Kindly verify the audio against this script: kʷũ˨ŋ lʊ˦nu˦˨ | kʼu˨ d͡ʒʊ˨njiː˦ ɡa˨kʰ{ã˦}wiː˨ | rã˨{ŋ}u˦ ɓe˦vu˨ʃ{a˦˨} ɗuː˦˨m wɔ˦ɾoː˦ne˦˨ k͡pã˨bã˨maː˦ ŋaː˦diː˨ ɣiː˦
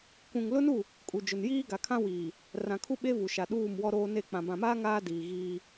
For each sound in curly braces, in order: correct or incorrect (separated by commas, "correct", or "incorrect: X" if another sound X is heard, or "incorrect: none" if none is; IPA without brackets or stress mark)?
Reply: correct, incorrect: kʰ, incorrect: a˨